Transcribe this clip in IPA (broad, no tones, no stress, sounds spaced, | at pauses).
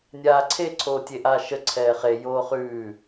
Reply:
nʲ aː ǀʰ e ǀʰ oː tʲ e ʔ aː ʃ ə ǀʰ ɛː χ e j oː χ ʉː